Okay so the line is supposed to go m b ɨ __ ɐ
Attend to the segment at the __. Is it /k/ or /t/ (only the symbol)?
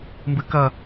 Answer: k